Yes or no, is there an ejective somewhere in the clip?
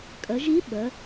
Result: yes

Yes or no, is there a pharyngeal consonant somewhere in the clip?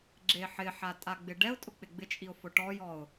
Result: yes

